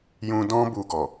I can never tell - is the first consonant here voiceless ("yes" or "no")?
no